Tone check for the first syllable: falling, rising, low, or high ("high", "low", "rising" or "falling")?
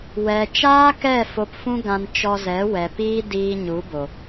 low